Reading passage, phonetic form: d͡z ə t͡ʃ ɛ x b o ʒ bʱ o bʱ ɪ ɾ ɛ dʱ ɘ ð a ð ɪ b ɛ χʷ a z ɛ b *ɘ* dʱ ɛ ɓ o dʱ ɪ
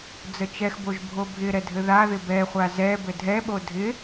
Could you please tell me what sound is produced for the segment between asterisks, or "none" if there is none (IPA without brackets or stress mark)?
ɘ